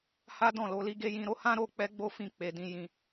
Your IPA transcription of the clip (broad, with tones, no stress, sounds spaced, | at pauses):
h a˦ d ɔ̃˦˨ l o˧ l i˧ ɡ e˧ j ĩ˧ ɾ o˦ h ã˦ ɾ o˧ k͡p ɛ˦ ɡ͡b o˦ f ĩ˧ k͡p e˨ d ĩ˧ j ĩ˧